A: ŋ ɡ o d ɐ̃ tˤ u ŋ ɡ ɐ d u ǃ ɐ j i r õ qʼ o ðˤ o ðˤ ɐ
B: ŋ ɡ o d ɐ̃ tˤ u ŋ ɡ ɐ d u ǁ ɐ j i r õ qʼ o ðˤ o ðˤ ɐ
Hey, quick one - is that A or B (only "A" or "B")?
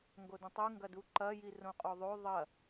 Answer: A